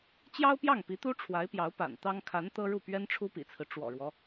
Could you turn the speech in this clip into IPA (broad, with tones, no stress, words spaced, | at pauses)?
t͡ɕjɑ˥ʊ̯pjɑ˥˩ŋpi˧˥t̪u˥ ʈ͡ʂʰwa˧˥ɪ̯pjɑ˧˥ʊ̯ pa̰˨˩n t̪ɑ˥ŋ kʰa˧˥n t̪ɤ˥ɻu˥˩ pɥɛ˥nʈ͡ʂʰu˥pḭ˨˩t͡sʰɹ̩˦ ʈ͡ʂwɔ̰˨˩ɻwɔ˦